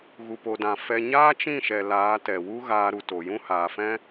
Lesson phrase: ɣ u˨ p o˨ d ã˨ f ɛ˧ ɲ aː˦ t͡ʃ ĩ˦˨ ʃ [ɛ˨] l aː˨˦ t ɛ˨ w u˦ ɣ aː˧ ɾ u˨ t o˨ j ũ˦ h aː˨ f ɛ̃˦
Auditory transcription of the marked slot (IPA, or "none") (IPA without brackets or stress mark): ɛ˨